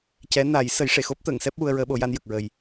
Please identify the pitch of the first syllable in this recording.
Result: rising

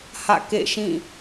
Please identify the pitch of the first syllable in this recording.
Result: falling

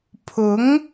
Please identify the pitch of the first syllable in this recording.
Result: rising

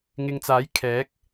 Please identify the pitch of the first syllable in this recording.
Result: low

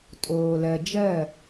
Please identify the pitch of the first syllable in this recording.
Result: low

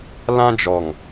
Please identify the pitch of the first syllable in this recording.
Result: high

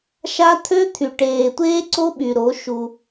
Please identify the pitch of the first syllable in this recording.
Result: high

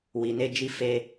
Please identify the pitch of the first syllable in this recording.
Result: low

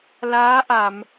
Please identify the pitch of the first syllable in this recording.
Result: rising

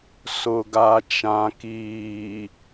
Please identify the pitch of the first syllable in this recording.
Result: low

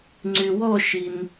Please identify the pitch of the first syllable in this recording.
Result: low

